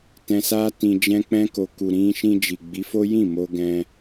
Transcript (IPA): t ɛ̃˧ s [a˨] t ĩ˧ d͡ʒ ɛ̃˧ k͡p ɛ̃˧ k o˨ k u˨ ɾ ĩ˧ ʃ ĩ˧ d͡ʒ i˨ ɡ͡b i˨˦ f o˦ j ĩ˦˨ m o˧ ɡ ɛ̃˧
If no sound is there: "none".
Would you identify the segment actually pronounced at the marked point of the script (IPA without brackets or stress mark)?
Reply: a˦